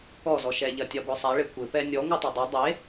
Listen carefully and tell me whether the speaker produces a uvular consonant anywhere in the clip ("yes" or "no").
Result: no